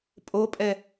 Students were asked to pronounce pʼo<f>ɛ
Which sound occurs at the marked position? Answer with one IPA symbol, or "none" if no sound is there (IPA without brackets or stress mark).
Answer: pʼ